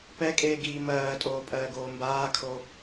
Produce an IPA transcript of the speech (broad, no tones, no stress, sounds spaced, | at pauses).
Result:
p ɛ kʼ eː ɡ iː m ɜː tʼ oː pʼ ɜː ɡ oː m b aː kʰ o